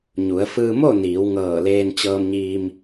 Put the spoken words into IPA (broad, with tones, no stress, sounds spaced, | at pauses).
ɲ u˩˧ ə̯ f ɯː˧ m o˥˨ n iː˩˧ w ŋ ɤː˧˩ l eː˧ n t͡ɕ ɤː˧ m ɲ iː˧ m